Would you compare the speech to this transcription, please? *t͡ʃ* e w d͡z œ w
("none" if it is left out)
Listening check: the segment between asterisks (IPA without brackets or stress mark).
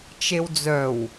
t͡ʃ